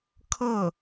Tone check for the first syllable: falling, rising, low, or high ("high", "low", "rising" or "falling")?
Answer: falling